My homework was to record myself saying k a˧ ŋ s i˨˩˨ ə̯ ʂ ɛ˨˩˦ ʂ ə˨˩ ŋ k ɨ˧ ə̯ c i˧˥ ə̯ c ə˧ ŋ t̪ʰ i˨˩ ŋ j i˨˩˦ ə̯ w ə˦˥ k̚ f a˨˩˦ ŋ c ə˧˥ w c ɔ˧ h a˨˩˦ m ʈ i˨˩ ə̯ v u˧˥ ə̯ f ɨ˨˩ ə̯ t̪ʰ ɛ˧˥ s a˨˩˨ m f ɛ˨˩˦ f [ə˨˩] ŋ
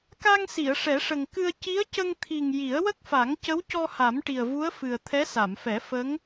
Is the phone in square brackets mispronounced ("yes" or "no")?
yes